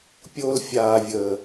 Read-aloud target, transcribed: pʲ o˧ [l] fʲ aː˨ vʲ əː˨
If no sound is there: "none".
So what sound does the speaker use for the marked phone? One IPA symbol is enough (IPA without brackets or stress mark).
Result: l